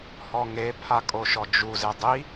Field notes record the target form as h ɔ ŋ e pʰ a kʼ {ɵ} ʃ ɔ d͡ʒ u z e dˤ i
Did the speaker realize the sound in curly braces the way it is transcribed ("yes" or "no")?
no